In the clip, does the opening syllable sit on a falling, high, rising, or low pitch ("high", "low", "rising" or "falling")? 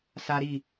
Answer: high